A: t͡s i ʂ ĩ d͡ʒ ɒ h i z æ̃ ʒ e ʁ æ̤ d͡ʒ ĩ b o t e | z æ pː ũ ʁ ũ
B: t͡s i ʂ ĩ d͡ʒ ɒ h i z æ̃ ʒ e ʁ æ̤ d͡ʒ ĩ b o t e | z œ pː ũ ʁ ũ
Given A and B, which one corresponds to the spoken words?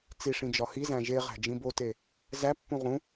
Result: A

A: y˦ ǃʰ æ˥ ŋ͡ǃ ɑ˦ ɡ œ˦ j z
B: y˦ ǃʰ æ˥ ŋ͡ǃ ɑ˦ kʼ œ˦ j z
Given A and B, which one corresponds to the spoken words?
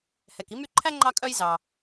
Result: B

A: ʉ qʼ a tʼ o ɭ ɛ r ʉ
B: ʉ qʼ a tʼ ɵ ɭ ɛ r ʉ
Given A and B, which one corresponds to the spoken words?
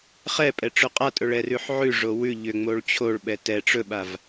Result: B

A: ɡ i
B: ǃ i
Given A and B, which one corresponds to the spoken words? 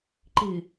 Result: B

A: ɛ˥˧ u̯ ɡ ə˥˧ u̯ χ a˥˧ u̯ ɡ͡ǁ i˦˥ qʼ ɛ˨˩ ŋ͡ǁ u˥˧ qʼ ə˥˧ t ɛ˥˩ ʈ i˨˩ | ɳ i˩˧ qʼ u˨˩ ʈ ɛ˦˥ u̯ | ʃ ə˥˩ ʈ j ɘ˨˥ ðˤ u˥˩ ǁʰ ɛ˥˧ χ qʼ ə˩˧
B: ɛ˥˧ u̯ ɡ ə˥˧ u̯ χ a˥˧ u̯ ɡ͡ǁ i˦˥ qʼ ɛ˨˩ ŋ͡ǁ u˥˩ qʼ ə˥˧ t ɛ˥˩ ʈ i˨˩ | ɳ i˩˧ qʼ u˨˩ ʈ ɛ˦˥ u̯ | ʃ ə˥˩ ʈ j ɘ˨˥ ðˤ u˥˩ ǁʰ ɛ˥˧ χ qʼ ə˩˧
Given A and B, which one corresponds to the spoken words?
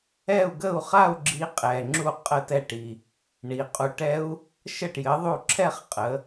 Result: B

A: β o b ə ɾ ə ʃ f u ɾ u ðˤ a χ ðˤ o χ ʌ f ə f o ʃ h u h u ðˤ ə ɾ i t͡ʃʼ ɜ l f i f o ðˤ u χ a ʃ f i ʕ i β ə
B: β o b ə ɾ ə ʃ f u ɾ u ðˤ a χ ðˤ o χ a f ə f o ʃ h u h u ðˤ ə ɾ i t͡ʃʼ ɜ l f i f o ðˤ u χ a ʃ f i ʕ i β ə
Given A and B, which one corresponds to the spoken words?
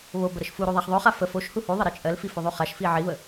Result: B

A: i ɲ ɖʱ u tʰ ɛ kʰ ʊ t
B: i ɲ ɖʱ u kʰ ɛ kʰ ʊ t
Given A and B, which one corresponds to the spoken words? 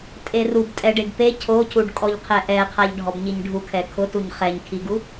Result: B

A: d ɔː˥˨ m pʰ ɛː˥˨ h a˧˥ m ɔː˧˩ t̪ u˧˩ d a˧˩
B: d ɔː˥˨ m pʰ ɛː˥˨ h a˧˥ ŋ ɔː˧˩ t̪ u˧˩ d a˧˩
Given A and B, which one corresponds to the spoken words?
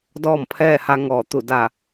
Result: B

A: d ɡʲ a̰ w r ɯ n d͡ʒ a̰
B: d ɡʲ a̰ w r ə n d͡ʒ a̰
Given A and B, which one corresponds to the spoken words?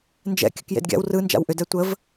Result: A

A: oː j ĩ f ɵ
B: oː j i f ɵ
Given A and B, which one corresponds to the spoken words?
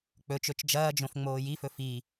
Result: B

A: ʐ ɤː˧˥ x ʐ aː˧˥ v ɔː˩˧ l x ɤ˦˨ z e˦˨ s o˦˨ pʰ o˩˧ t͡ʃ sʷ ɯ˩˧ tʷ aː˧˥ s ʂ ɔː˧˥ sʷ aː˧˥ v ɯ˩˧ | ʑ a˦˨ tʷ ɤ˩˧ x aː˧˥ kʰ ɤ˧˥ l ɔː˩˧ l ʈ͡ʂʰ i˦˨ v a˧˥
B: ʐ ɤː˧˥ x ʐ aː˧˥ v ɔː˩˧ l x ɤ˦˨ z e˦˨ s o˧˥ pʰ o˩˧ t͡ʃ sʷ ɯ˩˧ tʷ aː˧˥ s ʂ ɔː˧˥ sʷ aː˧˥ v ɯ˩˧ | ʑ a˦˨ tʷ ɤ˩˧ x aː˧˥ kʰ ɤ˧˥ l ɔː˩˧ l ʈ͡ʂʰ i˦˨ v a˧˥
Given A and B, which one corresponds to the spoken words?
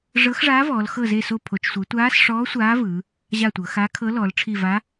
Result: A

